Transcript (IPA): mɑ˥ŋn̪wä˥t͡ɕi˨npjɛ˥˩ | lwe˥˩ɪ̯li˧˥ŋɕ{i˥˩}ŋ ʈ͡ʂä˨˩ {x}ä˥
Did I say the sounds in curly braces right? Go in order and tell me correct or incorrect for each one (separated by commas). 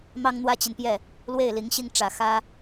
correct, correct